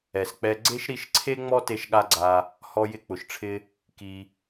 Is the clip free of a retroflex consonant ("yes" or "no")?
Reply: no